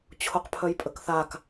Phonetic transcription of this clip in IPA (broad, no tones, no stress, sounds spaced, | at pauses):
t͡ɕʰ o q pʰ œ j pʼ ə k θ a k